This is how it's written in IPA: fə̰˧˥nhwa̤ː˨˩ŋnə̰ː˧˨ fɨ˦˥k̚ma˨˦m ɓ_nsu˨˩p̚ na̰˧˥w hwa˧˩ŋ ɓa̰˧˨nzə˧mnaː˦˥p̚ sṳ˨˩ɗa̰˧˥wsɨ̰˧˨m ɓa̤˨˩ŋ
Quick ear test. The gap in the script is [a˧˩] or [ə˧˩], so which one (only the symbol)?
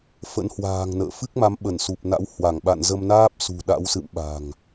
ə˧˩